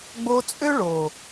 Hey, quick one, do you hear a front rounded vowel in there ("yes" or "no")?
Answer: yes